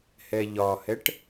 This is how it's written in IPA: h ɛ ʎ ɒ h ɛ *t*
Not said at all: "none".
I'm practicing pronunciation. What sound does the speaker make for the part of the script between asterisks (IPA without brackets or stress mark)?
ʈ